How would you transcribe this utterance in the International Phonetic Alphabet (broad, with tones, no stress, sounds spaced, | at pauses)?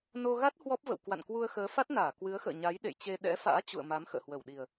n o˧ ɣ a˦˥ t̚ h w ɔ˦˥ p̚ v ə̰˧˨ w k w a̰˧˨ n k w u˧ ə̯ x əː˨˦ f a˦˥ t̚ n aː˧˩ k w ɨ˨˦ ə̯ x ə̰ː˧˨ ɲ a˨˦ j ɗ ḛ˧˨ j t͡ɕ e˧ ɗ ɛ̰˧˥ f a̰ː˧˥ t͡ɕ ṵ˧˨ ə̯ m a˨˦ m x ə̰ː˧˨ h w ə˧˩ w ɗ i˨˩ ə̯